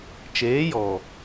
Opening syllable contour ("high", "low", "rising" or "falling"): rising